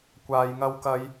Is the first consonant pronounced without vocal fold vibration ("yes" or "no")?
yes